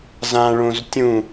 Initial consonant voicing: voiced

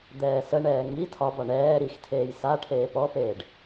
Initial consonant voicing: voiced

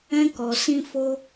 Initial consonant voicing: voiceless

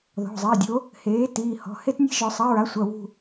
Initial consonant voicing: voiced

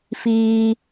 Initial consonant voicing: voiceless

